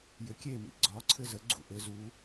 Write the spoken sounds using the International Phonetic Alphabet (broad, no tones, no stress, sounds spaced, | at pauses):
j ʏ kʲ e m ḭ ɡ͡ǀ ɒ ǀʰ ɘ z ə ɡ͡ǀ ṵ ʔ ɘ z u